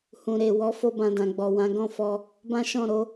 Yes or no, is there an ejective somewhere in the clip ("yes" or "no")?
no